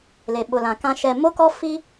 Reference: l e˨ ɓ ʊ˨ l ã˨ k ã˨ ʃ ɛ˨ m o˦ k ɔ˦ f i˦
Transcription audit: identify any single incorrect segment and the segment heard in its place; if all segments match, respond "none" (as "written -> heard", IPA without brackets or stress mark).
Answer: none